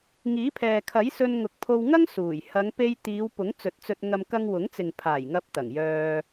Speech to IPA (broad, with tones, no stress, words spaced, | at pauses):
ŋiː˨˥pʰɛː˨ kʰɐ˨˥j sɵ˧nŋʊ˨k̚pʰo˧w ŋɐ˥ŋsuː˨˩j hɐ˨˧ŋpe˧jt̪iː˨˧w pʊ˨˥ŋt͡sɵ˨˥t̚t͡sɵ˧t̚ŋɐ˧m kɐ˧ŋwʊ˨˥ŋt͡sɪ˨ŋ pʰaː˨˩jŋɐ˨˥p̚ t̪ɐ˨˩ŋjœː˧